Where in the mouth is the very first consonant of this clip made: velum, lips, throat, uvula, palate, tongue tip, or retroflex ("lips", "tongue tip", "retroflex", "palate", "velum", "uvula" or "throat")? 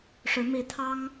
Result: retroflex